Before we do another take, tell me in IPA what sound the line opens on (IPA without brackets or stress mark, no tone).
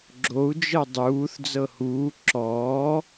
ɡ͡ǁ